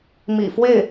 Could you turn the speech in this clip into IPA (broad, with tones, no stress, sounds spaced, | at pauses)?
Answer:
m ḭ˨˩ f w e˥˩ ɪ̯